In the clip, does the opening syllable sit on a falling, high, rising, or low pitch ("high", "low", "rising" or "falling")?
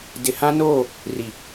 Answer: low